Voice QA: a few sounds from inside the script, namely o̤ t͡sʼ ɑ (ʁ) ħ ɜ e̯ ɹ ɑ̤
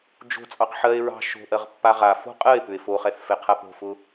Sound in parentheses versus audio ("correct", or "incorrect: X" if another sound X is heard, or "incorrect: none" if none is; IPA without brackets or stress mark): incorrect: q